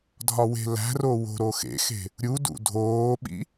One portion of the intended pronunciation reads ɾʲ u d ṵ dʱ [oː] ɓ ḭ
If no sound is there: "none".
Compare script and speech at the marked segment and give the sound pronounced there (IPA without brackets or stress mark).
oː